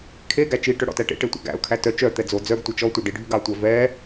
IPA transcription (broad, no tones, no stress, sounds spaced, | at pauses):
kʰ e ɡ æ t͡ʃ i ʈ œ ɽ ɔ̰ t æ ʈ ḛ ʈ e tʷ æ̰ ɡ æ̰ ʊ̯ kʰ æ t œ t͡ʃ œ t̪ ɛ d͡z o d͡z œ ɡ tʷ ɛ t͡ʃ ɔ tʷ œ ɖ i ɖʱ y ɡ ɑ tʷ æ v ɛ